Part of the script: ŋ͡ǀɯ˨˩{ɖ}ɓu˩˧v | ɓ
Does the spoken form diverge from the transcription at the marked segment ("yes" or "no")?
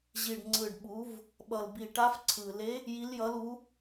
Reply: no